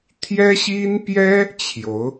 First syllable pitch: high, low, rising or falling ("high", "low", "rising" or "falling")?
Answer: high